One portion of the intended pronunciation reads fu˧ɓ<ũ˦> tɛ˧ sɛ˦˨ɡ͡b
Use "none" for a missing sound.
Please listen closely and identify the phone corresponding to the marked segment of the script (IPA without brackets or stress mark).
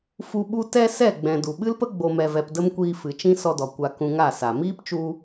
u˦